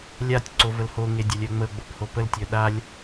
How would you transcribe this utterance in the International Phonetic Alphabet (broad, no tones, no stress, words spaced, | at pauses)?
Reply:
lʲatʲǀo vəlhoŋe dʲalʲœŋ͡məo̯ɡ͡bop hopəltʲœ ɗalʲ